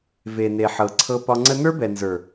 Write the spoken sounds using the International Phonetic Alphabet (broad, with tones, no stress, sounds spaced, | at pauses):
v e˨ n e˨ ħ ɤ˨ ǀʰ ɤ˧ p ɒ˧ ŋ͡ǀ ə˧ n ə˞˦ b ɛ˨ n z ə˞˨